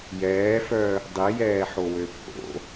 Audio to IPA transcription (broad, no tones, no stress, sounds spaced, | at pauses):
j ɛː f œ | dˤ i j ɛː ħ o w ø pʼ o̰